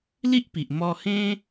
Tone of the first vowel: high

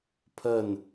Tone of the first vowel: falling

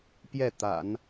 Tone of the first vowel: falling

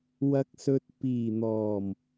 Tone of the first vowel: low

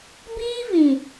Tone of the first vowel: high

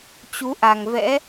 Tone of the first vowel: rising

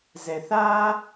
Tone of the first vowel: low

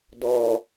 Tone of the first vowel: low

